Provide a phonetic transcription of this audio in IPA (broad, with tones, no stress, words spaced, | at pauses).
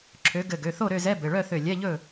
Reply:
ǁʰø˨˦ ɡɘ˧˩ ɡø˩˧˩θo˥˨ɾø˥˨zɛ˧˥˧ bɘ˩˧˩ɭœ˥˨θø˧˩ lʲɛ˧˥˧ʎɵ˥˨